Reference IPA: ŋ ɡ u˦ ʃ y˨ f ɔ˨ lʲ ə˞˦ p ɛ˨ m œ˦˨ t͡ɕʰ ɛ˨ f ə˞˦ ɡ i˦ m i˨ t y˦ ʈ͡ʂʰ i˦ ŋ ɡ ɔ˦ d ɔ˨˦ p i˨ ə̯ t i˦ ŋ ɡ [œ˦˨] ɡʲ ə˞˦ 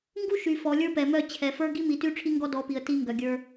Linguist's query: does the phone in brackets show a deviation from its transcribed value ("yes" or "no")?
yes